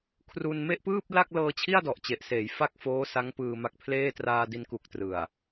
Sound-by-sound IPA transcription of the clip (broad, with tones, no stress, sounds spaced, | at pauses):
kʰ r u˧ n m e˥˩ ʔ p ɯː˥˩ p̚ l a˥˩ k̚ l ɤː˧ t͡ɕʰ i˥˩ a̯ d ɔ˨˩ ʔ t͡ɕ e˨˩ ʔ s eː˩˦ j f a˥˩ k̚ f oː˦˥ s a˦˥ ŋ p ɯː˧ m a˦˥ k̚ pʰ l eː˥˩ t r aː˧ d i˧ n k u˨˩ k̚ t r ɯ˨˩ a̯